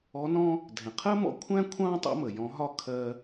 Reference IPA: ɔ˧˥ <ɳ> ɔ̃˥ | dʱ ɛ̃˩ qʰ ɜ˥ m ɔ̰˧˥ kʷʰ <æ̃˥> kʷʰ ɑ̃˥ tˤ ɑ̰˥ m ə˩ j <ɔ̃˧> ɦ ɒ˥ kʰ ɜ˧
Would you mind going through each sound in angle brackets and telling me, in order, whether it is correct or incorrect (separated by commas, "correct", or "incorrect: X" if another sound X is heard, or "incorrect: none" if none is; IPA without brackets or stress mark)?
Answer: incorrect: n, correct, incorrect: ɔ̃˧˥